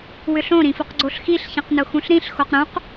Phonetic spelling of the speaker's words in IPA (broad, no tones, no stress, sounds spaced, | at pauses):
w ʏ ɬ õ ɾ ĩ f ʊ q ɡ͡ǀ o ɬ x i ɬ ç ĩ q n ʊ x ũ ɬ ɾ ĩ ɬ x o q ɾ ũ q